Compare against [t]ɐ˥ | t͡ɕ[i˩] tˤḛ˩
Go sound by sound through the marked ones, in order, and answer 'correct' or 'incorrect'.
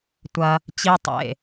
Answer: incorrect: tʷ, incorrect: i˥

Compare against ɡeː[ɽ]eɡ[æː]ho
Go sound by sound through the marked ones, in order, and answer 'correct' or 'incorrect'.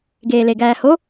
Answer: incorrect: l, correct

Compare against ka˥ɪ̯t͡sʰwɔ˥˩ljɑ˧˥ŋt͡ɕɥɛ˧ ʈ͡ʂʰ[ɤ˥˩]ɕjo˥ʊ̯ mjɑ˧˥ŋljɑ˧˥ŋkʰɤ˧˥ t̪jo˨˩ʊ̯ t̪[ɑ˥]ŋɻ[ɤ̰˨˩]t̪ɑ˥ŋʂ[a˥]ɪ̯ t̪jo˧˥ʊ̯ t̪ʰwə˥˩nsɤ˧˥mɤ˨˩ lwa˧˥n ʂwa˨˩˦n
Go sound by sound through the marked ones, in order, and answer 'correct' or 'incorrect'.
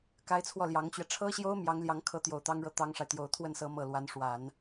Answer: incorrect: ɤ˥, correct, incorrect: ɤ˥˩, incorrect: a˨

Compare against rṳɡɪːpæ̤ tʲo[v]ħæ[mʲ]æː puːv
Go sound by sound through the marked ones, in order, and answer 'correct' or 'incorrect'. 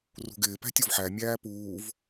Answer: correct, correct

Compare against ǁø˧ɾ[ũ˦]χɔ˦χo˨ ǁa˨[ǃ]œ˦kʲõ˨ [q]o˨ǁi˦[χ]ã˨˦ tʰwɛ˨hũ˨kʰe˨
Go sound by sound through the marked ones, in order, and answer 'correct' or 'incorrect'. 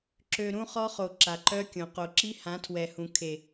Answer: correct, correct, correct, incorrect: h

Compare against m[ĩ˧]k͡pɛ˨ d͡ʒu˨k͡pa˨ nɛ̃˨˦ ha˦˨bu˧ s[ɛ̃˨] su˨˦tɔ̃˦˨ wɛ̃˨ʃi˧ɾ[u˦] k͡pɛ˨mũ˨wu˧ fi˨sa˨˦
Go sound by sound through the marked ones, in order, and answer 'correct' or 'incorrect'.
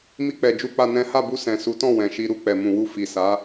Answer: incorrect: i˧, correct, incorrect: u˧

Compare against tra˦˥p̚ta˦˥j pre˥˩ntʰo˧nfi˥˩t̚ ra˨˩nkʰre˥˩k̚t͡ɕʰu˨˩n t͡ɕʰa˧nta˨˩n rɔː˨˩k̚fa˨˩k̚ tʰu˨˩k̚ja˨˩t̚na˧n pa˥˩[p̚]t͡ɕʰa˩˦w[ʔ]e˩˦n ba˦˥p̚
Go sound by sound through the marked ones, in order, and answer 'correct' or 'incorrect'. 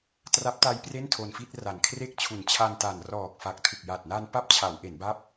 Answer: correct, correct

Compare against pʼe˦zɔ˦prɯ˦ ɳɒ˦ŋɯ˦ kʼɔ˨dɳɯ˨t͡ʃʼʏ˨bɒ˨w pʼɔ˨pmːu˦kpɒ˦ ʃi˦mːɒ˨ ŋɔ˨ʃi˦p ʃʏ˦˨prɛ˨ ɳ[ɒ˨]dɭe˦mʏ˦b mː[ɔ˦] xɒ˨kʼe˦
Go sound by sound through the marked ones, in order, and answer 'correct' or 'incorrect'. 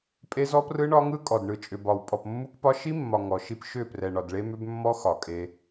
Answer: correct, correct

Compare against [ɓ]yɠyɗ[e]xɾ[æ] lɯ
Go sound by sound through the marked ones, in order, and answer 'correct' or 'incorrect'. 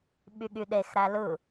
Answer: correct, correct, correct

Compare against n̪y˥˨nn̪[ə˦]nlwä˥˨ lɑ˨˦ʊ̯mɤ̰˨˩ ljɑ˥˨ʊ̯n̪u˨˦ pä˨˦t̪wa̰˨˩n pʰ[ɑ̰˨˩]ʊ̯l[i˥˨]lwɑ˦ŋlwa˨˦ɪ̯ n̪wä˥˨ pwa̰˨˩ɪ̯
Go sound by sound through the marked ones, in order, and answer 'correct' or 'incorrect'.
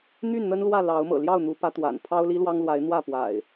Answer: correct, incorrect: ɑ˦, incorrect: i˦

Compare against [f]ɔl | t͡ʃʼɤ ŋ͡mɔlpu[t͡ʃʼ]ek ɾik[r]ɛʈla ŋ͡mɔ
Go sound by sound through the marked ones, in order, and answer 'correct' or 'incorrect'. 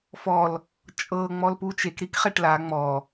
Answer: correct, incorrect: t͡ʃ, incorrect: χ

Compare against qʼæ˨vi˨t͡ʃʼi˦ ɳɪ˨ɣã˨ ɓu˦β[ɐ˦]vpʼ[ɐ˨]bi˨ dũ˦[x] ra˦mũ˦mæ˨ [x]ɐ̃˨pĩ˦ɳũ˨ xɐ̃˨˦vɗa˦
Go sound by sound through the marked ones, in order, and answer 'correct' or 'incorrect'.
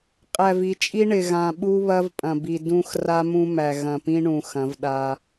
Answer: correct, incorrect: ɐ̃˨, correct, incorrect: ɣ

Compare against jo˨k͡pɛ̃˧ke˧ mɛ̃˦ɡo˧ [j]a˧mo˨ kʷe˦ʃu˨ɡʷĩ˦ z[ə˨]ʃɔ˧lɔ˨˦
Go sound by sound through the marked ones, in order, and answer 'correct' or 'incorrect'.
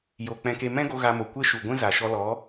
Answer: incorrect: ɣ, incorrect: a˨

